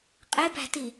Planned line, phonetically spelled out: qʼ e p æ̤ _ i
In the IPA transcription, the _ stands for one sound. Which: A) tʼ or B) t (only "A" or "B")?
B